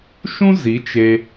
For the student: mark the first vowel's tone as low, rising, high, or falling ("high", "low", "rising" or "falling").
high